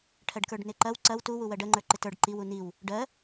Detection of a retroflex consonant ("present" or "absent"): present